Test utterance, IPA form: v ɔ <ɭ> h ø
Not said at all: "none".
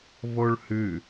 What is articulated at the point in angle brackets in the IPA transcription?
ɭ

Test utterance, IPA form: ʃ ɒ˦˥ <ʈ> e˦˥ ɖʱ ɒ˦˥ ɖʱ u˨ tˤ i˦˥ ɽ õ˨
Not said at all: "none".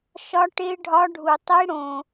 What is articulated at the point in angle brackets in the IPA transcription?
ʈ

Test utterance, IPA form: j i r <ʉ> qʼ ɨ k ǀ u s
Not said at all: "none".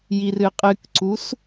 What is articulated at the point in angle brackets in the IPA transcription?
ɨ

